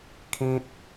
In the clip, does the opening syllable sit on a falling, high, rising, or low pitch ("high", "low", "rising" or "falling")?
high